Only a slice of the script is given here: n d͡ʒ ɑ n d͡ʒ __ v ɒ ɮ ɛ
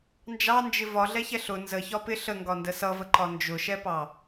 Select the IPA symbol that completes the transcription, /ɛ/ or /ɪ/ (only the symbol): ɪ